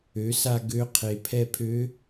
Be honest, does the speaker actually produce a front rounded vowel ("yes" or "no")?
yes